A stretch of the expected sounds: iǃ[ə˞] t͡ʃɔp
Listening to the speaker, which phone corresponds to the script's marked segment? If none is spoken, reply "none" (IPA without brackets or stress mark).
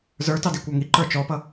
ə˞